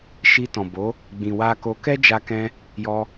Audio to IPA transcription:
ʃ i˧ t ɔ̃˨ b o˨˦ | ɡ͡b ĩ˨ w a˧ k o˧ k ɛ˦ d͡ʒ a˧ k ɛ̃˧ | j ɔ˧

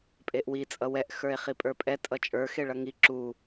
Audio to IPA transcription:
pʼ e ʔ w i t͡sʼ ʌ w ɛ ʔ x ə˞ e̯ χ i pʼ ə˞ pʼ ɛ tʼ ʌ t͡ʃʼ ə˞ x e ɭ ʌ ŋ i ǁ u

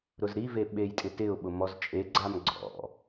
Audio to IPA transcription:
ɾ ʊ z ɾ i v e ɓ e j tʼ ɪ t ɪ ʊ̯ ɓ ʊ m ɔ z t͡ʃʼ e ɡ͡ǀ a m ɡ͡ǀ ɔ̰

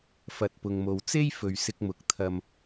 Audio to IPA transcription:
f ɐ˨ t̚ p ʊ˨ ŋ m o˨ w t͡s e˥ j f ɵ˨ ɥ s ɪ˧ k̚ m ʊ˨˥ k̚ t̪ʰ ɐ˧ m

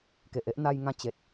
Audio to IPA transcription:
k e˨ ʔ e˦ ʔ n̪ a˧ j ŋ ã˧ t͡ɕ e˨ t̚

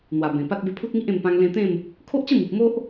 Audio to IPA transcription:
n̪ w a˨˩ b ẽ˨˩ p a˦ t̚ b e˧ pʰ u˦ t̚ ŋ i˦ ʔ ẽ˧ m p ã˧ ŋ l ẽ˧ t̪ ẽ˥˧ m | kʰ o˦ ʔ t͡ɕ ə˥˧ m i˨ p̚ m o˦ ʔ

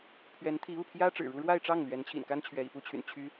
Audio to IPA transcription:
pʰ ɥ ɛ˧˥ n t̪ʰ i˧˥ u˥˩ pʰ j ä˥ ʈ͡ʂ ɻ̩˨˩ ɻ u˥ ɻ w a˥˧ ɪ̯ ʈ͡ʂ ɑ˥˩ ŋ l ɥ ɛ˧˥ n t͡ɕʰ ḭ˨˩ n k a˥ n t͡ɕʰ ɥ ɛ˧˥ ḭ˨˩ p u˥ t͡ɕʰ y̰˨˩ n t͡ɕʰ y˥

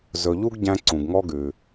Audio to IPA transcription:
z ɵ˧ ʎ u˥ ɡ ɟ æ̃˧ ǀ ũ˩ ɡ ŋ ɔ˧ ɡ ʉ˩

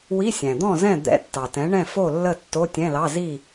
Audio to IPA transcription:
w i˧˥˧ sʲ æ̃˩ d̪ ɔ̃˥˨ z ɛ̃˥˨ d̪ ɛ̰˧˥˧ tː ɑ˩ t ɛ̃˩˥ ɳ ɛ̃˥˨ f o˥˨ lː ə˥˨ tː o˧˥˧ tʲ ɛ̃˧˥˧ l ɑ˧˥˧ z i˥˨

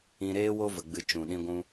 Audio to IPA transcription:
ĩ˧ ɾ eː˦ w o˧ v ə˨ ɡ͡b ɨ˨ t͡ʃ ũ˨ ɗ ĩ˧ ɡʷ ũ˧

